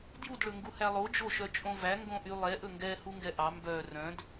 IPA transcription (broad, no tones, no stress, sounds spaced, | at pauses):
d j u d ɭ ɵ ŋ ɡ u h æ lˠ o d͡ʒ o ʃ œ t͡ʃʼ õ v æ ŋ ɡ õ ʔ y lˠ ɛ ʔ ɵ ŋ ɡ ɛ h u ŋ ɡ ɛ ʔ ɑ m b œ r œ̃ d